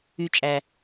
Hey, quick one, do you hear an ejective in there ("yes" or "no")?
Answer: yes